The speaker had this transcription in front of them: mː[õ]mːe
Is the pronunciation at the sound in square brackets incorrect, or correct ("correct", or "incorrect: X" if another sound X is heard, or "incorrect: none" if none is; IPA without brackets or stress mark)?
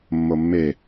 incorrect: o